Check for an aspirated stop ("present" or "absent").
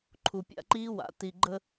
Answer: present